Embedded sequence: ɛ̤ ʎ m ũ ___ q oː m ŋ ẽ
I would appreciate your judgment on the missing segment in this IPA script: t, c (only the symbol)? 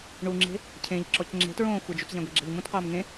t